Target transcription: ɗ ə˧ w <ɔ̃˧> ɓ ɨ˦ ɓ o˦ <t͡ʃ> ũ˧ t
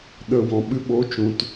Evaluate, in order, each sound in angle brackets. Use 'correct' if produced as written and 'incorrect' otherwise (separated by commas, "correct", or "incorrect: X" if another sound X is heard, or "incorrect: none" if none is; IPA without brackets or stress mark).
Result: incorrect: ɔ̃˨, correct